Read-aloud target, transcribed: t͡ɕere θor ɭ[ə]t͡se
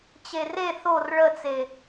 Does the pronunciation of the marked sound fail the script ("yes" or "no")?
no